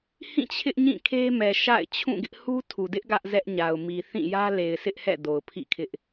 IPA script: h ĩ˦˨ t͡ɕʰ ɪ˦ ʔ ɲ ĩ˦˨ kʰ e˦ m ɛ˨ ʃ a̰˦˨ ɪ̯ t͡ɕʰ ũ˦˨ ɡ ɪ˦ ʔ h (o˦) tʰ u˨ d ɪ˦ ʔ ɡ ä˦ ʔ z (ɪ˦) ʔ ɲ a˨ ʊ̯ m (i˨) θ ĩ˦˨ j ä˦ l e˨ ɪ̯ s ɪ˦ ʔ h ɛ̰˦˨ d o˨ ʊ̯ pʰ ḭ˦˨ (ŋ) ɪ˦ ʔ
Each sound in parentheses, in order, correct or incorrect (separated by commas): incorrect, incorrect, correct, incorrect